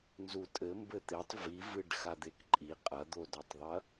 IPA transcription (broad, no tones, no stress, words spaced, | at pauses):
nzutʼɘ mbɘt̪etˤ vivɨɖ xad̪ekǃʼi qʼɐd̪odɔtˤðˤɐ